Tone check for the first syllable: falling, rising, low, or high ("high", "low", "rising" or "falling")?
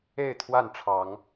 falling